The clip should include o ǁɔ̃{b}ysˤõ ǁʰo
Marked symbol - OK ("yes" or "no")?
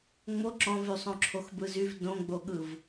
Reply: no